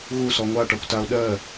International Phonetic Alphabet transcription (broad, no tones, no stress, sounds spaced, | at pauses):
ɣ u s ɔ ŋʷ a ʈ ɔ kʷ t a o̯ ɗ ɜ